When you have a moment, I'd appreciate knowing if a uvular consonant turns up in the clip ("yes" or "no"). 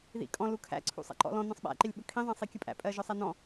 no